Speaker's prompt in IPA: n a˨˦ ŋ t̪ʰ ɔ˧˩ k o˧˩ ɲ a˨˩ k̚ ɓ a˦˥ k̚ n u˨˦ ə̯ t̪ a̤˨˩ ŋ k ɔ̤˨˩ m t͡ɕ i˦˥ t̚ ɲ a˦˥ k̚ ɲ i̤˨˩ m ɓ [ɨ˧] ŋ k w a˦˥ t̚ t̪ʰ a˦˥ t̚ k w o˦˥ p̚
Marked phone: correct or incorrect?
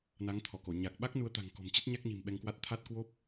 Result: incorrect